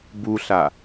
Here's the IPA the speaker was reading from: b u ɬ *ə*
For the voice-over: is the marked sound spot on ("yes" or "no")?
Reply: no